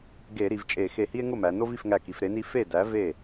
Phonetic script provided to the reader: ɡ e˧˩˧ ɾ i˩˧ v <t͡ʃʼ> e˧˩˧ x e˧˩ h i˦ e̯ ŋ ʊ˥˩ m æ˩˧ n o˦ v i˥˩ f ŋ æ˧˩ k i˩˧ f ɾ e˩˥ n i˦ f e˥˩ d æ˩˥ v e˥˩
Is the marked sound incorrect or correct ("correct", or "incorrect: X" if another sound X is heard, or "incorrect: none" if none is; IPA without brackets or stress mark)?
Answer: correct